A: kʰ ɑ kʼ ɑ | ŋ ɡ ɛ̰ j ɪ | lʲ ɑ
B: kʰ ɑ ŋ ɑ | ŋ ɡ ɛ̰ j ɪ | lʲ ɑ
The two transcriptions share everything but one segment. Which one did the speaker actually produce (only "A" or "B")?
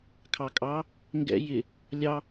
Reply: A